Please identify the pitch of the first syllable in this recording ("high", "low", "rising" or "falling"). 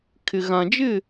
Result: low